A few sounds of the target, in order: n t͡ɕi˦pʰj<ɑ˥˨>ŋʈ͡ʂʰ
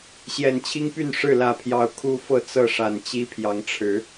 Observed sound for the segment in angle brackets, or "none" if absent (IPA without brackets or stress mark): ɑ˨˦